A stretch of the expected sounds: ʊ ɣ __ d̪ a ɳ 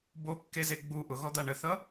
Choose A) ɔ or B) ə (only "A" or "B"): A